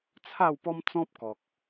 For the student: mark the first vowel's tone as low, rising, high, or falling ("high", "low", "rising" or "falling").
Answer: falling